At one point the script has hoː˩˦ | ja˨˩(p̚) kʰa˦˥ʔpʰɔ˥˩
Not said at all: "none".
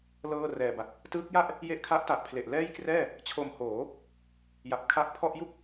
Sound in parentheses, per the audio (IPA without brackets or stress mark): p̚